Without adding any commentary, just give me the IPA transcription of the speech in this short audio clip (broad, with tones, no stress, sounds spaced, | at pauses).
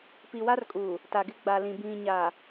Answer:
p i˨ w a˦ r kʼ u˨ | t a˨ ɡ ɪ˦ ɡ͡b a˨ l ĩ˨ b ĩ˨ ɲ a˨